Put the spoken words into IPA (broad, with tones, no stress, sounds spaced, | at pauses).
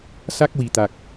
s a˦˥ k̚ w i˨˩ t̪ a˨˩ k̚